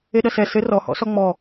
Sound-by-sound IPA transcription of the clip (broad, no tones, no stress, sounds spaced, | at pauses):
e ɗ ɐ s ɛ s ɘ r ɔ h ɔ̰ s ɔ ŋ͡m ɔ